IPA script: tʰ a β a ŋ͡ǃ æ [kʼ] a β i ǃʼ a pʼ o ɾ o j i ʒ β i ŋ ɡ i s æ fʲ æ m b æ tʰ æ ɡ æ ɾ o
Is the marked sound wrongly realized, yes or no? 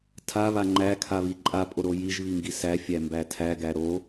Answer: yes